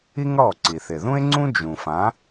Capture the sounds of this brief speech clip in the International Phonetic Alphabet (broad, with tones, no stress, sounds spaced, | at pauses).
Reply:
i˥ ŋ ɽ ɔ˥˩ ǀ i˩ θ ɪ˩ ð ũ˥ e̯ ŋ͡ǀ ũ˥ d͡ʒ ũ˩ f ã˩˥